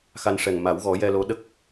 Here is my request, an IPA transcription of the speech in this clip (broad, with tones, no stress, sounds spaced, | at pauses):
x a˧ n ʂ ɛ˨˩ ŋ m a˨˩˦ w ɣ ɔ˨˩˦ j ɛ˧ l o˧˥ ɗ ə˦˥ k̚